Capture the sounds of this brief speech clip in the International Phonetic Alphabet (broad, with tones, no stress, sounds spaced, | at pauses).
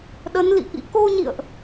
ɗ ə˨˦ n l ḭ˧˨ ʔ ḭ˧˥ k o˧ ɲ ḭ˧˨ ə̯ ʔ